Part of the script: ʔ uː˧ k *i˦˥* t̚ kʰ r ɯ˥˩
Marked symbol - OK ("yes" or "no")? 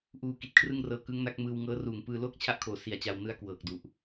no